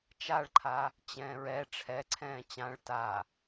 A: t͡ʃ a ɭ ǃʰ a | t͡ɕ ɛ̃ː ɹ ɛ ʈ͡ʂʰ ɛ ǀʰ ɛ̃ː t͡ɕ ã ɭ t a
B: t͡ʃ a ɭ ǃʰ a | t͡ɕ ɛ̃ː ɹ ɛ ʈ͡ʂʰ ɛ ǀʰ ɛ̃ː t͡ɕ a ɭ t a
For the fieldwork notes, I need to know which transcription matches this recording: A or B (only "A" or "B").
A